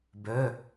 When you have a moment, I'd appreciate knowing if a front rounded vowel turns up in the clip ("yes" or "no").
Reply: yes